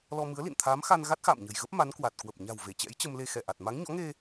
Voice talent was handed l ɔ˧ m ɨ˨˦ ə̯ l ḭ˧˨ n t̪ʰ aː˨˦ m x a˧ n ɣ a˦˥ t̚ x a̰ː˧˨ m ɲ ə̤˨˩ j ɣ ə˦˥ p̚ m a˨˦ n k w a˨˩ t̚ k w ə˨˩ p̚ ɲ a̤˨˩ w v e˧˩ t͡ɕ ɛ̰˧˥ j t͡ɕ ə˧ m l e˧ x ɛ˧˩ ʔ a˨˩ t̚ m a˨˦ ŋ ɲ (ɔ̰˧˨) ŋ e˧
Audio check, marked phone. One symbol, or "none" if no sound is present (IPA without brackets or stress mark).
ɔ̰˧˥